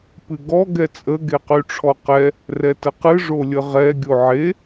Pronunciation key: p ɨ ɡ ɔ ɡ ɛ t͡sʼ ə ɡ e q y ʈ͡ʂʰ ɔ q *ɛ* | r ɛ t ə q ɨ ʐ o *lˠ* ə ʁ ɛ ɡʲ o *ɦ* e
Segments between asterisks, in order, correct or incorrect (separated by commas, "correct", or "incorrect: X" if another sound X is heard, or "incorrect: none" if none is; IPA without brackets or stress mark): correct, incorrect: lʲ, incorrect: ʕ